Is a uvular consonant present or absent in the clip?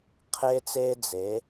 present